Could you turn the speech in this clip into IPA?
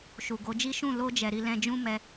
ʃu˨ɡo˨˦d͡ʒi˦ ʃũ˦˨ lo˧d͡ʒɛ˨ ɾi˧lɛ̃˧ d͡ʒũ˦ mɛ˦

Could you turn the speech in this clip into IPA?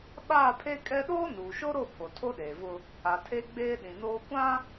ɓaː˦˨pʰe˦ kʼɛ˦ ɗoː˦nuː˨ʃo˦ɾo˦˨ pʰo˨tʰo˦ɗeː˨vʊ˦ | a˨tʰe˦ ɡ͡beː˦ ɗĩ˨noː˦ kʷã˦

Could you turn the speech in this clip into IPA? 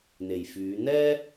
n̪e˨˩jfyː˨˧ n̪ɛː˥

